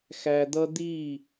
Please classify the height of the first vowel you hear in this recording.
low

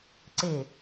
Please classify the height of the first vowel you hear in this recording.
mid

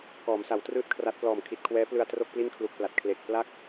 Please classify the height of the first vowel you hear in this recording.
mid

